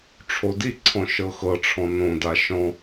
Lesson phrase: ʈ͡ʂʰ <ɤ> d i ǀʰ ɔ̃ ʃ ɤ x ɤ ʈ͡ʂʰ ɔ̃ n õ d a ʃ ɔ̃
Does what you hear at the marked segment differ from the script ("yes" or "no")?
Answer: yes